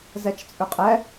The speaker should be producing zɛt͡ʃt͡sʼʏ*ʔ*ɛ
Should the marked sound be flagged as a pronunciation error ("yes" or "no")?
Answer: yes